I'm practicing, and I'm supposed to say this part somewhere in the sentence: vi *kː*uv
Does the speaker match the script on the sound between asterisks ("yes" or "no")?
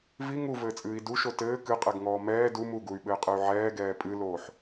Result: no